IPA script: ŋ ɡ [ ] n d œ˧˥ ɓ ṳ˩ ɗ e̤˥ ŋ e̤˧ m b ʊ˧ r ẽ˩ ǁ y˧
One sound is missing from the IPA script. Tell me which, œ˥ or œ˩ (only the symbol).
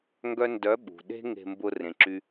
œ˥